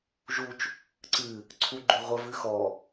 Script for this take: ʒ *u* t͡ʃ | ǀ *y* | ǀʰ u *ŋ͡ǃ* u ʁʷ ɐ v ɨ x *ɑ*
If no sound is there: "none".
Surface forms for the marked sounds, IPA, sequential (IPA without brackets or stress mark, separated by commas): u, ɨ, ɡ͡ǃ, ɔ